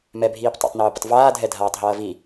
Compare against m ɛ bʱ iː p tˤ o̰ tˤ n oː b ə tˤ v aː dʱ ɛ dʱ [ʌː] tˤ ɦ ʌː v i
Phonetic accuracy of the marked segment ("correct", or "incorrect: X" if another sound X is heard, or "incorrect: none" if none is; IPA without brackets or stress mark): incorrect: aː